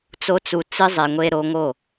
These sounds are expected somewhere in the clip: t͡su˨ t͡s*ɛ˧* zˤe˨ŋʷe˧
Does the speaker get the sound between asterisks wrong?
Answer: yes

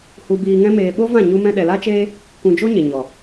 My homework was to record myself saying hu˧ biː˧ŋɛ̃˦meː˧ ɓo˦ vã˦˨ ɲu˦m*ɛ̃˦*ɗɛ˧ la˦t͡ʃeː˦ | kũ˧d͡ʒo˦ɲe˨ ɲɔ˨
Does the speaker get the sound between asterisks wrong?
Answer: no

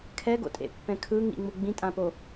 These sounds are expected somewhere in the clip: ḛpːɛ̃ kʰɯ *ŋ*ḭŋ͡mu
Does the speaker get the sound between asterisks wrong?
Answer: no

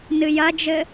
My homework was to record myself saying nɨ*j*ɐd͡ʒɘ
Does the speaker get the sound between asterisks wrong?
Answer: no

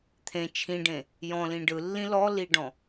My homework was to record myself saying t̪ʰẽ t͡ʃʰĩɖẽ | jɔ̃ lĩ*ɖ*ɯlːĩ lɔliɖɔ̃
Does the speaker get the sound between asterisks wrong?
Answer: no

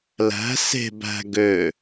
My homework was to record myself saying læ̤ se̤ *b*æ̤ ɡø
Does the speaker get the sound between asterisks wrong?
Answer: no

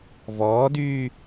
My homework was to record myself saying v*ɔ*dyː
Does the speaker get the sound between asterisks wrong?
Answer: yes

